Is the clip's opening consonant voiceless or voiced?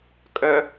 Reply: voiceless